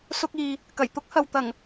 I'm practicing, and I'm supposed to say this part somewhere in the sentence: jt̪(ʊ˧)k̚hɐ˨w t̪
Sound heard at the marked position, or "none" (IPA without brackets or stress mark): ʊ˥